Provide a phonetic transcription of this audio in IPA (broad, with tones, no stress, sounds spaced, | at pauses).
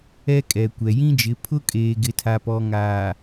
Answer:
ɛ˦ kʼ ɛ˨ kʷ ɛ˨ j ĩ˦ d͡ʒ ɪ˨˦ pʰ ʊ˦ kʼ eː˨ ɡ ɪ˨ tʰ a˨ p ɔ˨ ŋ aː˨